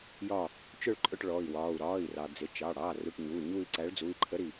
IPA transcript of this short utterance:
jɒː˦˨ | t͡ʃʊ˦˨ɭǃʼʊ˦˨ʈ ɭɔ˩˧˩i̯wɒː˩˧˩u̯ ɾɒː˩˧˩i̯rɑ˩ d͡zɪ˩˧˩t͡ʃɑ˩˧˩ ɽɑː˩˧˩ru˩˧˩ʈ ɲuː˩˧˩ɲuː˦˨i̯ǀæ˨˥ɭ d͡zu˩˧˩i̯ǃʰə˨˥ ɾi˩

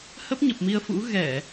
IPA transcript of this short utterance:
hə˦˥p̚ɲə˨˩p̚mi˧ə̯fṵ˧˥ ɣɛ˧˩˨

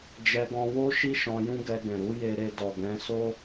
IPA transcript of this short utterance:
d͡ʒɛ˧ɡɔ̃˧wo˦ ʃi˦ʃɔ̃˧jũ˦ɡɛ˧ ɡɛ̃˨ɾu˨˦je˧ɾe˧ dɔ˨ɡɛ̃˨˦so˦

